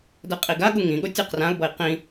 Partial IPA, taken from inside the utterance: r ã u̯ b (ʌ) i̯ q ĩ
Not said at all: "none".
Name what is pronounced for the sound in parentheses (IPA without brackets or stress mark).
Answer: ʌ